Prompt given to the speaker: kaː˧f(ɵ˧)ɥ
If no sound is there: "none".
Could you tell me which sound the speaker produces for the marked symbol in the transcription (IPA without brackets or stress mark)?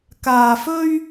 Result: ɵ˥